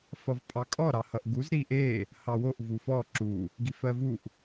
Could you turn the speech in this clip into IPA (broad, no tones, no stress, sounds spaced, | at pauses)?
f ʌ v pʼ ɑ kʼ ɔ ɾ ɑ h ʌ ʔ ɡ u z ɾ i ʔ e | h ɑ w o ʔ v u f ɔ ǁ u | ɡ i f ɜ v u ʔ